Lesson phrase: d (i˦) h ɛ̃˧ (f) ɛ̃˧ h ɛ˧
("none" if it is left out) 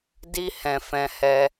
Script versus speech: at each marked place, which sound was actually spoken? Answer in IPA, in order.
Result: i˦, f

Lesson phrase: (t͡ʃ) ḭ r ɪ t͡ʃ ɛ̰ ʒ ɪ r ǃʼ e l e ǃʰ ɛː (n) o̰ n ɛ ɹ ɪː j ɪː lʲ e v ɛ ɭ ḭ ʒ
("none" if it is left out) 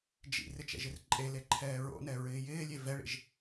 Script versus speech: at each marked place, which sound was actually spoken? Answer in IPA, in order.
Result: d͡ʒ, ɹ

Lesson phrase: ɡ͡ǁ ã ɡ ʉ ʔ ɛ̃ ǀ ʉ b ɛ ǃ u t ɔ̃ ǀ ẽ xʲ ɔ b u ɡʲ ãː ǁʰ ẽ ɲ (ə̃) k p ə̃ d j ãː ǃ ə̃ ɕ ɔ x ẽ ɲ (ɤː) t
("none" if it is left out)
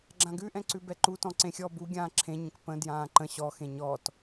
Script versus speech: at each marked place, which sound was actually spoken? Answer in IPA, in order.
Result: ə̃, ɔː

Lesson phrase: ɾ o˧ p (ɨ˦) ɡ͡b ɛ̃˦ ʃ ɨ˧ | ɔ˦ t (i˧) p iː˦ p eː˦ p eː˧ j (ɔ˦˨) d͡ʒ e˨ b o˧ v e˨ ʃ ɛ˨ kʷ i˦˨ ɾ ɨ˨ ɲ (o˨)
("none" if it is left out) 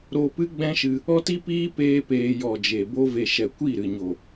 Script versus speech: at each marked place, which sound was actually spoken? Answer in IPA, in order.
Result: ɨ˦, i˦, ɔ˨, o˨

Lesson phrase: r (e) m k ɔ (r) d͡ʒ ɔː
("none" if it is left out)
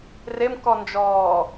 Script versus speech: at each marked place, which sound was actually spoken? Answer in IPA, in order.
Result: e, n

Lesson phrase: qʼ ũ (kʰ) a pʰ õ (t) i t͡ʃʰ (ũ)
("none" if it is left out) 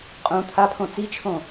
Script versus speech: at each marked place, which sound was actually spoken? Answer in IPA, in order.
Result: t̪ʰ, t͡s, õ

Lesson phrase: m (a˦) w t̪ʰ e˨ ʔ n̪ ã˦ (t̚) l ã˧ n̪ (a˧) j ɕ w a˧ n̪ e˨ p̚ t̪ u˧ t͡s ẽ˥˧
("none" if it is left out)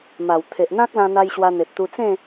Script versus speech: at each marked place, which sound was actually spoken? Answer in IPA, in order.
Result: a˨˩, k̚, a˧

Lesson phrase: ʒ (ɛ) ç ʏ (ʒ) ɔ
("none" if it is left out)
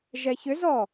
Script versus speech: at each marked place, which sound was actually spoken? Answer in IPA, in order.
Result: ɛ, z

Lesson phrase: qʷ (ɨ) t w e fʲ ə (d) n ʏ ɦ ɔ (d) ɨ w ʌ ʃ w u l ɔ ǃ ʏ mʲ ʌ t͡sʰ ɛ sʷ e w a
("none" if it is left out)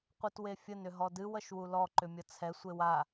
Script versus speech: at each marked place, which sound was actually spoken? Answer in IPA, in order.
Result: ɨ, none, d

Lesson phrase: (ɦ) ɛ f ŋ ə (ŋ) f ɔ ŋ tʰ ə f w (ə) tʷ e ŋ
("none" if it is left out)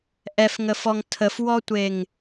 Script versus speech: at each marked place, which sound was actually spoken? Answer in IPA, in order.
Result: ʔ, none, ɔ

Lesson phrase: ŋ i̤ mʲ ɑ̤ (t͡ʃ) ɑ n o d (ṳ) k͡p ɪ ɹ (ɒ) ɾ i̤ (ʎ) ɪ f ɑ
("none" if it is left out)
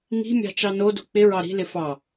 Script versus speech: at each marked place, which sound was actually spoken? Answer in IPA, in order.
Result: t͡ʃ, ṳ, ɑ, l

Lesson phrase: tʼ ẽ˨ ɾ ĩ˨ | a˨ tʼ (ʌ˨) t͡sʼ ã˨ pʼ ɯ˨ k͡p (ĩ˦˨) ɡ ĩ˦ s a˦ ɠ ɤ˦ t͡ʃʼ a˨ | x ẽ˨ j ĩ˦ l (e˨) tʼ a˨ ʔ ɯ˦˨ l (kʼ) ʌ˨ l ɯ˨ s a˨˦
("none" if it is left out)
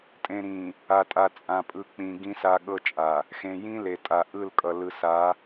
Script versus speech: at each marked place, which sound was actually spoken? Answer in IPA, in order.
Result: a˨, ĩ˨, e˨, kʼ

